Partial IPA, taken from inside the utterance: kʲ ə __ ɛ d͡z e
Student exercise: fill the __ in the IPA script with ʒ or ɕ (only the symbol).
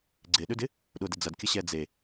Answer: ɕ